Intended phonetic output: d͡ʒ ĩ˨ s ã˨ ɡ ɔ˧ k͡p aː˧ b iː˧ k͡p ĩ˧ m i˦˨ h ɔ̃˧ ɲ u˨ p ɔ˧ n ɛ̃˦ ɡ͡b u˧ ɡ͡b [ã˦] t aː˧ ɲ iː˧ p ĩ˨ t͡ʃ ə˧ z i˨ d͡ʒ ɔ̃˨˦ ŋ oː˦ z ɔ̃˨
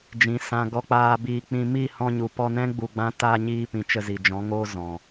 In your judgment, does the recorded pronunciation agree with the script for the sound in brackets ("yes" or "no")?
yes